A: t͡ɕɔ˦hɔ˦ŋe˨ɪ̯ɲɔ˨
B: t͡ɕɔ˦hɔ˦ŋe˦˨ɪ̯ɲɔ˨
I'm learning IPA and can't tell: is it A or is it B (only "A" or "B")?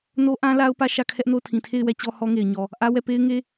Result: A